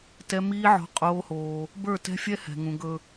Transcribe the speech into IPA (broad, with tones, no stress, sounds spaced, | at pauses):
t ɛ˦ m iː˦ ʕ ɔ̤˦ qʼ oː˦ h oː˦ | b ə˞˦˨ t ɛ̤˦ fʲ ɛ˦ h ɛ̤˨ ŋ ũ˨ ɡ ɵ˨